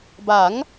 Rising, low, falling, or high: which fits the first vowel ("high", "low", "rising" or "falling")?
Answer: rising